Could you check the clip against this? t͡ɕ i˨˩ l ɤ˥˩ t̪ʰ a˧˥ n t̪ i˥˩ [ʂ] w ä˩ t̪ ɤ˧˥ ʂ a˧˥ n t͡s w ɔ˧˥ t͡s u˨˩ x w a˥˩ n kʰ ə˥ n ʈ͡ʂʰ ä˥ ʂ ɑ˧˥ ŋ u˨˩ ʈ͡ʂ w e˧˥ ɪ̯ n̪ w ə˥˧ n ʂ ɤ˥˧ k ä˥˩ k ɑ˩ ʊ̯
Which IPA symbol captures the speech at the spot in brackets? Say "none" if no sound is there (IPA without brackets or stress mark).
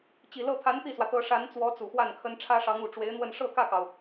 s